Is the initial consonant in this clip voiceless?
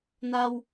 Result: no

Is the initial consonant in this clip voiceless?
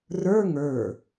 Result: no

